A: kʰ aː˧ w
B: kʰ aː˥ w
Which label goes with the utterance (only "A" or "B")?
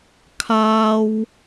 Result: B